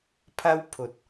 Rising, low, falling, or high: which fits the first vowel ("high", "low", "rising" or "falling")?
high